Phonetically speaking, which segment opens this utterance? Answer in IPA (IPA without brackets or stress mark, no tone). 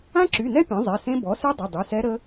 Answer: ã